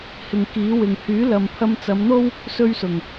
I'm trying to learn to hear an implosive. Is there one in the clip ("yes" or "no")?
no